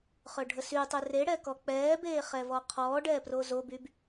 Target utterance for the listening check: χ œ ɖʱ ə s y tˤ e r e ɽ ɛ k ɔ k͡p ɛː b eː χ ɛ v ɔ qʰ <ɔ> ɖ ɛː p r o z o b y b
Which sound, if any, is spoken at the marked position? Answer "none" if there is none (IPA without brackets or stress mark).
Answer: ɔː